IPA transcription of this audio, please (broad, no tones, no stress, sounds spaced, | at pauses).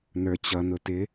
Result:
n ə˞ t͡ɕ ʌ n ʊ t ɪ